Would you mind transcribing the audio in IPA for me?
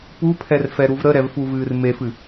p u pʰ ɛ r f ɛ ɾ u v ɾ ə ɾ ɛ v f u v ɨː r m e f ɨ

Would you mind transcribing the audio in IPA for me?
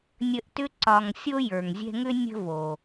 nʲ ə˦ ʔ t ʏ˥ ǀ ɒ˨ ŋ sʲ o˥ j ə˞˩ ŋ zʲ ɛ̤˦ ŋ ʏ˥ nʲ ə̤˥ v o˩

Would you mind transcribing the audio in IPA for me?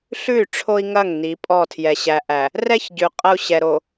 ɬ ʉ˦˨ y̯ ʈ͡ʂʰ o˦ i̯ ŋ ɐ˦˨ ŋ n i˨˦ pʼ ɔ˦˨ tʰ j ɛ˨ ɕ æ˨ ʔ æ˨ | r ɛ˦ ç ɟ ʉ˨ qʼ ɐ˦ u̯ ɕ ɛ˨ ɾ o˨

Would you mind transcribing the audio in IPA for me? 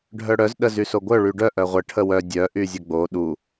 ɖʱ œ ɽ œ z ɗ ə z y s o ɡʷ œ ɭ y ɖ œ ʔ œ ʁʷ ə ʈʰ ə w œ dʲ œ ʔ y zʲ ə ɡ͡b o ɗ u

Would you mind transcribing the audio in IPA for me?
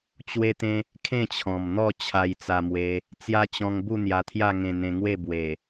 t͡ɕ w e˦ t̪ ẽ˦ | kʰ ẽ˥˧ t͡ɕʰ ɔ̃˨˩ m n̪ ɔ˥˧ t͡ɕʰ a˧ j t͡s a˧ m w e˧ | t͡s j a˦ t͡ɕ ɔ̃˧ ŋ b u˥˧ n̪ j a˧ t̪ʰ j a˥˧ ŋ ẽ˧ n̪ ẽ˧ ŋ w e˥˧ b w e˨˩

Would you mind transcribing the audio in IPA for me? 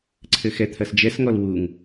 ǀʰ ɘ x ɛ t̪ʰ ɐ s d͡ʒ ɛ s ŋ ɔ l w u ŋ

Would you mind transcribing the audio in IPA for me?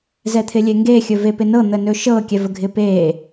z ɛ t̪ʰ ɪ lʲ e ŋ ɡ e xʲ ɵ v e p ɪ n ɤ n̪ ə n ɵ ʃ ɤ kʲ ɛ v ə ɡʱ ɪ p e

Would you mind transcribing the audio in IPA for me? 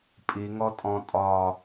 pʼ i ŋ ɔ tʼ ɔ̃ tʼ ɒ

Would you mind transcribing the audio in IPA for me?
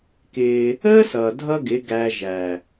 k ɪː˧ | əː˦ s ʌː˨ dʱ ʌ˦ ɡ ɪ˨˦ ɡ æ˧ ʒ æ˨

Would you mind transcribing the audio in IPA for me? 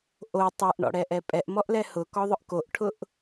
ʔ o tˤ ɛ ʔ ɳ ɔ̰ ɽ ɛ ʔ ɛ pʼ ɛ ʔ m ɔ ʔ l ɛ h ʊ k ɔ ðˤ ʊ ʔ k o ʔ ʈʰ ʊ ʔ

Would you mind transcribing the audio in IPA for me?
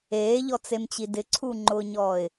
eː ʎ ɔ t͡s e m t͡ɕ i d ɪ ǀʰ u ŋ͡ǃ ʊː ɲ ɔː ɪ̯

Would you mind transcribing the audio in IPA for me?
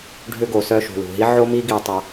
ɖʱ ʏ˧ ɡ o˨ s œ˧ ʃ ṳ˨ l ṳ˨ ɦ i˦ ʕ o˦ m i˦ ɡ i˧ tˤ a˧

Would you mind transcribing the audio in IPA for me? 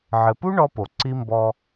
ʕ ɘ˨ p u˦ ɳ ɔ˦ p o˨ ǀ i˦ m b ɔ˦

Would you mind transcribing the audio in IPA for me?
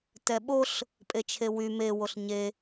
t ɛ ɓ o ɬ | pʼ e t͡ʃʰ e w y m e w o ɬ ɲ e

